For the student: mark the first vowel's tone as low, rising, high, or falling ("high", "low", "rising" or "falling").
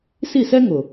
falling